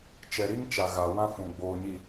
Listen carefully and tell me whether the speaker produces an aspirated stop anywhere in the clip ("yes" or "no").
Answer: no